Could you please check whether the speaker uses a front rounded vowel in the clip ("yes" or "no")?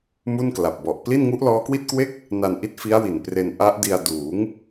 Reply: no